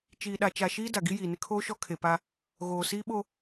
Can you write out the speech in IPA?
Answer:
t͡ʃiː˨ɗa˨ t͡ʃa˨ʃiː˦ da˨ɡi˦ jiː˨nɪ˦ kʰoː˦ʃɔ˦kʰe˨pa˦ | ɣoː˨siː˦ɓo˦

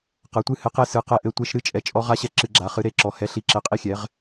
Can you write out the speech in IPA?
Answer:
qɐ˨˥tʷɨ˦hɘ˨˥qe˦ sɨ˨˥qɛ˦ ʔɘ˦ tʷe˦ʃ ɾɨ˦ t͡ʃʼɛ˨˥t͡ʃʼɔ˦ʁa˦ɕɛ˦ ǁɨ˦ɡ͡ǁa˨˥ χɨ˨˥ɾe˨˥ǁɔ˨˥ hɛ˨˥ɬi˨˥ǁɘ˨˥qʼi˦ xʲɛ˨˥ʁ

